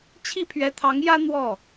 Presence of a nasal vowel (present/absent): absent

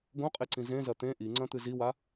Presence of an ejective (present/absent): present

